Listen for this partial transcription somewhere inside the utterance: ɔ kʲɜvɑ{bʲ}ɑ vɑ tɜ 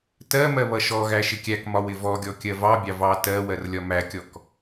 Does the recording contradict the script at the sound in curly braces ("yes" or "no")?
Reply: no